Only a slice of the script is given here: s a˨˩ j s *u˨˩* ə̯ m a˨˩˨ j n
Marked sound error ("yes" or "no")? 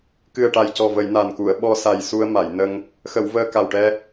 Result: yes